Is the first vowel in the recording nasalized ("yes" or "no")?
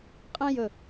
yes